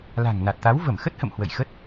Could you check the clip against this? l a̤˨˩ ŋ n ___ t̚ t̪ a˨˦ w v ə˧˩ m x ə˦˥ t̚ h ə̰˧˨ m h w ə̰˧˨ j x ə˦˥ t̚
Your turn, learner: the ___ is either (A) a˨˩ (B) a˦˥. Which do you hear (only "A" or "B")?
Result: A